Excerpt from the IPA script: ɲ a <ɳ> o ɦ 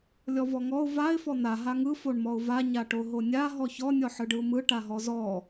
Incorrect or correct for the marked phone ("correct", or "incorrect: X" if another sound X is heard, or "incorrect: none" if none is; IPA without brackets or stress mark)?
incorrect: ʈ